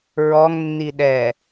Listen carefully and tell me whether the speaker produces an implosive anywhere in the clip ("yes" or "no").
yes